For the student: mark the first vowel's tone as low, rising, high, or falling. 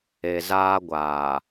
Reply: low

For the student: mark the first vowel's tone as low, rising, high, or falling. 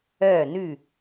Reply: falling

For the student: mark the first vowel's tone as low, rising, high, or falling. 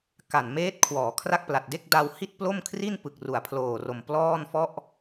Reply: low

